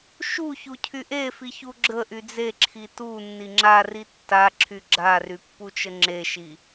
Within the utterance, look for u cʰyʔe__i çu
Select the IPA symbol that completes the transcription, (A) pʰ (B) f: B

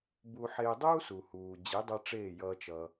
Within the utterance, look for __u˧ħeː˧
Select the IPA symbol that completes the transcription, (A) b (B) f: A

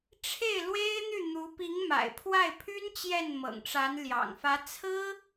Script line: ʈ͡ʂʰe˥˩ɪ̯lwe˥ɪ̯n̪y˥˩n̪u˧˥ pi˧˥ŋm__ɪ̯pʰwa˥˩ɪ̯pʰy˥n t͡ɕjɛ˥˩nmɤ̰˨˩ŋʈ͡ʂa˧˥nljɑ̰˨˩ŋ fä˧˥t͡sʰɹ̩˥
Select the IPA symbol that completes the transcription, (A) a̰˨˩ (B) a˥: A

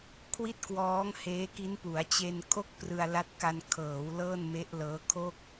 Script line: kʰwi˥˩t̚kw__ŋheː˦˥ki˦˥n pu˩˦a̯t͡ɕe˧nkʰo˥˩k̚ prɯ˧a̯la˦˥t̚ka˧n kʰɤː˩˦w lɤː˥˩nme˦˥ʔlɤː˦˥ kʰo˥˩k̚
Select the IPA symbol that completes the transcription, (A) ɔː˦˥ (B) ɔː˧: A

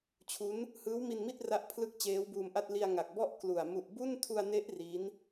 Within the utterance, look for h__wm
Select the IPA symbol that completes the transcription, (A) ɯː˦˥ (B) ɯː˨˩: A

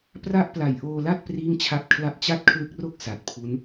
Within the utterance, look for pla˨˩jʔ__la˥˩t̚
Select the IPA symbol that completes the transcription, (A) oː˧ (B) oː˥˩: A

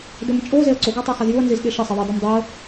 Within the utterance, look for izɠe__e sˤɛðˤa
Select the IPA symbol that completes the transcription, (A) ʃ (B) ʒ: A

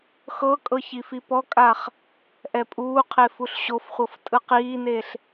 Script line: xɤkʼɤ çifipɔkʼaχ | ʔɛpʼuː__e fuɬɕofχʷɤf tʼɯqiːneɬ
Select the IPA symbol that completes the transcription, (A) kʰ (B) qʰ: B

